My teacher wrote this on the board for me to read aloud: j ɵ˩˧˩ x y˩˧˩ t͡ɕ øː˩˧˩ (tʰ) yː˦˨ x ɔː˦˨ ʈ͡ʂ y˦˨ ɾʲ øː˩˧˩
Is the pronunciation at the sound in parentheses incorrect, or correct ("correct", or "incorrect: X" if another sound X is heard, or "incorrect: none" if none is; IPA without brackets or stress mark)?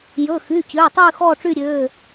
incorrect: tˤ